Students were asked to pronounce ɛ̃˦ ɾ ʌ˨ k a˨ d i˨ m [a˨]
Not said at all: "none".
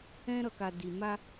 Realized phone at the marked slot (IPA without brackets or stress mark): a˦